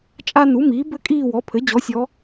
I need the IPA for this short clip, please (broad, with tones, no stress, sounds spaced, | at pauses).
t͡ʃʼ a˦ n u˩˥ m iː˩˥ b ɘ˦ kʼ iː˦˨ w ɔ˩˥ pʰ ɘ˩˥ d͡ʑ ɔ˩˥ sʲ ɔ˩˧